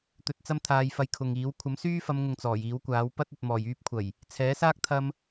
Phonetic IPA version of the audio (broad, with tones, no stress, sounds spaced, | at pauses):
t̪ ɵ˧ t̚ t͡s ɐ˥ m t̪ʰ aː˧ j f ɐ˧ j kʰ ʊ˨ ŋ iː˨˥ w kʷʰ ɐ˨˥ m s yː˥ f ɐ˨˧ m ŋ ʊ˨ ŋ t͡s ɔː˨˩ j iː˨˥ w kʷ aː˨˥ w p ɐ˥ t̚ ɵ˨ t̚ m ɔː˨˩ j yː˥ p̚ kʷʰ ɐ˨˩ j | t͡sʰ ɛː˨˥ s aː˥ k̚ t̪ʰ ɐ˧ m